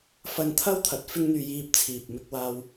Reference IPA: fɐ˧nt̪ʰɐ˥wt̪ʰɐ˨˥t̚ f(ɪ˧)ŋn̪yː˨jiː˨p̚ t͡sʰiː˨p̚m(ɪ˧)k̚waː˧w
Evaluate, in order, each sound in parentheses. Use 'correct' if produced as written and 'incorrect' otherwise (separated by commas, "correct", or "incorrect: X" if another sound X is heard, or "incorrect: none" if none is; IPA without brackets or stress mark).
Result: correct, correct